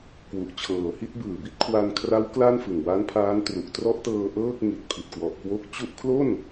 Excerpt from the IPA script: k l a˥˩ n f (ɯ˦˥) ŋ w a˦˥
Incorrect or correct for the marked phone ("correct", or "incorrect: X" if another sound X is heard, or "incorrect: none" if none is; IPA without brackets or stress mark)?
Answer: incorrect: ɯ˨˩